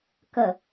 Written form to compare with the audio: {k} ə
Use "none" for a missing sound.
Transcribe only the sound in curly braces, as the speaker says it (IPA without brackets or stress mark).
k